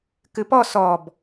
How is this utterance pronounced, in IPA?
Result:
kɨpɔ sɔb

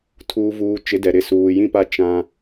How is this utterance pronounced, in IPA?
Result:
tʰuː˨vuː˨t͡ʃɪ˨˦ dɛ˨ ɾɪ˦ suː˨jĩ˦pa˦ t͡ʃã˦

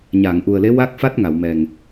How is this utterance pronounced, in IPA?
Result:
ɲaː˨˩˨ŋʔu˨˩ə̯le˧˥ wa˦˥k̚fa˦˥t̚ŋa˨˩˨wmɛ˨˩ŋ

